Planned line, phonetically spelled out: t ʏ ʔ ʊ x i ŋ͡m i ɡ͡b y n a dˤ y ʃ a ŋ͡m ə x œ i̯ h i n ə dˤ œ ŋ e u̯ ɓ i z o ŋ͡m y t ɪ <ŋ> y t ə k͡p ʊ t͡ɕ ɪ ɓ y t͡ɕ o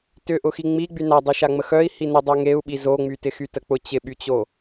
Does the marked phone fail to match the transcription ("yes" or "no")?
yes